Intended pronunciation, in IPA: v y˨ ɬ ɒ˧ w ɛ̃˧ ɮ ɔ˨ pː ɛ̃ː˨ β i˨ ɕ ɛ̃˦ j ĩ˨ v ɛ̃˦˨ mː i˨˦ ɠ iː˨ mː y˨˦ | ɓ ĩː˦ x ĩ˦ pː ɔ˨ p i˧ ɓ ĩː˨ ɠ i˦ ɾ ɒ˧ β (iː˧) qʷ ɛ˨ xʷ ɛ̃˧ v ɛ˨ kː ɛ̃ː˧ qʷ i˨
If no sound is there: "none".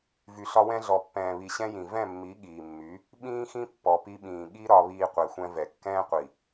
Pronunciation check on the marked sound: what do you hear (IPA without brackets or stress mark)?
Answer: iː˧